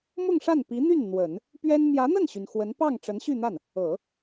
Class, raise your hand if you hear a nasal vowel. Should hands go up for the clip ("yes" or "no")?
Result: no